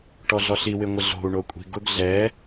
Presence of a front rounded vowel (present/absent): absent